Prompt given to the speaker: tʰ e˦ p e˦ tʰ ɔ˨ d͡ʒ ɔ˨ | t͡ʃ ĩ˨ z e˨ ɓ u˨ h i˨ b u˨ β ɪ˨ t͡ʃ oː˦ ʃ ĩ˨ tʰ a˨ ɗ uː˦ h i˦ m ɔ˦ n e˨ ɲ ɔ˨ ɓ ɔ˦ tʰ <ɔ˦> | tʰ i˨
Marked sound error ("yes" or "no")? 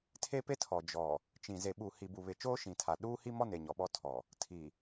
yes